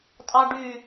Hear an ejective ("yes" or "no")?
yes